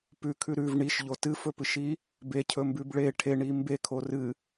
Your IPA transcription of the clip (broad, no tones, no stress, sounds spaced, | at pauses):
p ʉ kʰ ʉ ɾ ʉ v ɳ i ʃ ʎ o t ɨ f ɵ p ɨ ʃ i | b e cʰ ɵ m b ʉ b ɭ e ʈʰ e ɳ i m b e kʰ o r ɨ